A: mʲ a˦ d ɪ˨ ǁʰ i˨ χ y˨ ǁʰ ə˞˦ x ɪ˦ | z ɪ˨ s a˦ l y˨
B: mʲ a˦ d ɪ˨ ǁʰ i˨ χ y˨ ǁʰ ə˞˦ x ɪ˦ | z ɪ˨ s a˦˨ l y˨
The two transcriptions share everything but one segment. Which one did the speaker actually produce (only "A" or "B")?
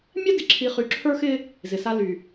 A